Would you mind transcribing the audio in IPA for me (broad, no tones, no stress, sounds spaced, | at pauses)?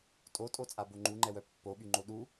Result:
tʼ o tʼ o t͡sʼ a b o ŋ͡ǃ u ŋ͡ǃ ɛ w œ pː o ɓ y ŋ͡ǃ o ɗ u